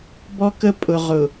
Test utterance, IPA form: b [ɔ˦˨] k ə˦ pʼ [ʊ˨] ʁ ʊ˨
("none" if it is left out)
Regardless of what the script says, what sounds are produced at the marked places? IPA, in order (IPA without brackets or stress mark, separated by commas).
ɔ˦, ʊ˨